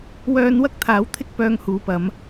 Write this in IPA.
w œː˧ n w ɐ˥ k̚ t̪ʰ aː˨˧ w t̪ʰ ɪ˥ k̚ p œː˧ ŋ h uː˨˧ p ɐ˨˧ m

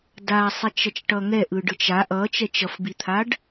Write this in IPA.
d a sˤ e t͡ʃ ʌ t͡ʃ ʈ ʌ ŋ ɛ ʔ ɯ ɖ ɯ t͡ʃ a ʔ ʌ t͡ʃ ɛ t͡ʃ ʌ f b i t̪ʰ a ɖ

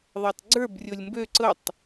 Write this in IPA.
ðˤ əː tˤ ɡ͡ǀ ə˞ b rʲ o lʲ m b ø ǀ ɤ tˤ

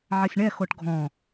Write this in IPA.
ʕ ɐ sʲ ɳ ɛ x o ʈ ɡʱ ɔ̃

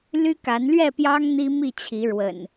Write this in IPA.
l y˦ k a˨˦ n l ɥ ɛ˥˨ p j ɑ˦ ŋ n̪ i˦ m i˥˨ t͡ɕʰ i˨˦ ɻ w ə̰˨˩ n

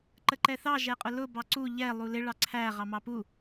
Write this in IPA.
ǃ ə ǃ ɛ θ ɑ ʒ ɛ qʼ ʊ l ʊ b ɑ ǀ u ʎ ɛ lˠ u l ɪ ɭ ɑ ǀʰ æ ʁ ɑ m ɑ p u

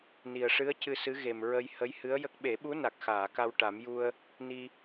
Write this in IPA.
n i˨˩ ə̯ ʂ ɨ˧˥ ə̯ c ɨ˧ s ɨ˧˥ ɣ e˨˩ m ɹ ə˧ j h ə˧˥ j h ɨ˧˥ ə̯ j ə˦˥ k̚ ɓ e˨˩˦ ɓ u˧˥ n a˨˩ k̚ x aː˨˩˨ k a˧ w ʈ a˨˩˦ m j u˧ ə̯ | n i˧

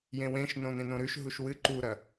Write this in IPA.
j ẽ w ẽ ʃ n õ n ẽ n õ ɾ ʉ ʃ ɦ u ʃ w ɨ ǃ u ɾ ɐ

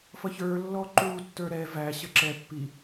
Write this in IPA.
f ʌ ç ə˞ lː ɔ ǃ u tː ə˞ ɾ ɛ v æ ɕ ə ǁ ɛ pː i

